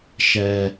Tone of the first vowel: low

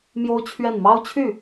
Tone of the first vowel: high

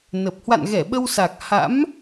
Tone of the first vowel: low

